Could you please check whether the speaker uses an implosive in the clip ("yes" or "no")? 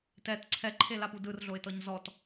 no